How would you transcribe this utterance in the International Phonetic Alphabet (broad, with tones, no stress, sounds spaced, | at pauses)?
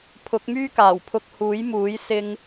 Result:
pʰ ʊ˨˥ k̚ m yː˥ k aː˨˩ w pʰ ʊ˧ k̚ h uː˨˥ j m uː˨˥ j s ɪ˥ ŋ